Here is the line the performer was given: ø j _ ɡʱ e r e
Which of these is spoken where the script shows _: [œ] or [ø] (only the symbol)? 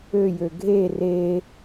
ø